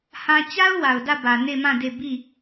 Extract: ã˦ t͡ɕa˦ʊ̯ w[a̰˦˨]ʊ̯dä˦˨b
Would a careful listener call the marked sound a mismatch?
yes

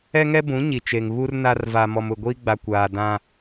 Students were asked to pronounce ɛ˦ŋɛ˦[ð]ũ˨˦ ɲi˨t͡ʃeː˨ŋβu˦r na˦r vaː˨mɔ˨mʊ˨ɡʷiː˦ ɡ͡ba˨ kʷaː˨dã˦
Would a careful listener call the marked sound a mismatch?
yes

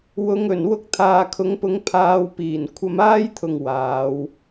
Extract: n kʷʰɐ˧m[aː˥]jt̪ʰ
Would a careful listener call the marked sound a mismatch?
no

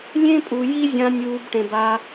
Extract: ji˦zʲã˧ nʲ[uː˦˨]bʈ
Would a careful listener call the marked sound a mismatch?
yes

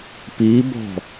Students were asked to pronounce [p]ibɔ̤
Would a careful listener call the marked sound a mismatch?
no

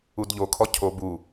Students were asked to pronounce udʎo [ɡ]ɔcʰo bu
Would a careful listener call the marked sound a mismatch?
yes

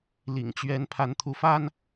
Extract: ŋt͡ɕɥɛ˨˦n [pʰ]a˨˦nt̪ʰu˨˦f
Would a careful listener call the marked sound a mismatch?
no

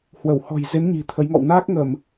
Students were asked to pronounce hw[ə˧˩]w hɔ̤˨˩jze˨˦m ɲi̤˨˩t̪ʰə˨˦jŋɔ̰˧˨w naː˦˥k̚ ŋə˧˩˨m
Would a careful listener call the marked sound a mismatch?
no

